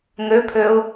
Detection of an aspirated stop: present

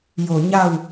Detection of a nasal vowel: absent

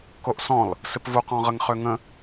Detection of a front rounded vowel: present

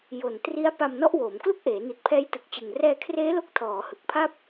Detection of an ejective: absent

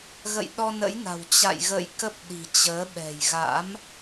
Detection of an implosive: present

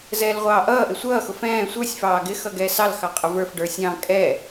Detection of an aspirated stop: absent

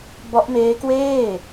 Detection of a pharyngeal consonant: absent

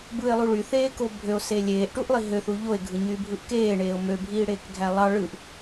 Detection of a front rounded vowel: present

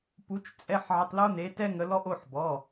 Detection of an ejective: present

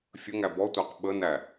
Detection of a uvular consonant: present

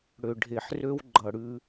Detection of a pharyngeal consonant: present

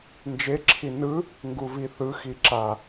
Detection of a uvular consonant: absent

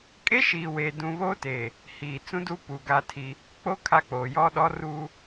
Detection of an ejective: present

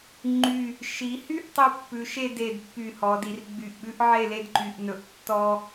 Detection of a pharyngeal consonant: present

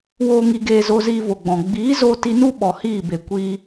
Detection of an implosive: present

